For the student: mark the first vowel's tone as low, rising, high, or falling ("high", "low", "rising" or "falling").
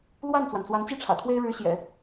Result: falling